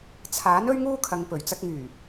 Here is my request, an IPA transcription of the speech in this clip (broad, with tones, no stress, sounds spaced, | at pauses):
t͡sʰ aː˨˥ n ɵ˥ ɥ ŋ uː˥ kʰ ɐ˨ ŋ p ɵ˨˩ ɥ t͡s ɐ˧ k̚ ŋ yː˨˩